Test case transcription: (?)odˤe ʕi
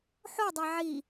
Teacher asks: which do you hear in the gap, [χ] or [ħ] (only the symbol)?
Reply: ħ